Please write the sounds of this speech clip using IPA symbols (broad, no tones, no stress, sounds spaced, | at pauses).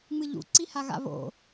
ŋ͡m ɨ ʎ ṵ ǀ i h a ɣ a̰ β o̰